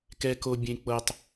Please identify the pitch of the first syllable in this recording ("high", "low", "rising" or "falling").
high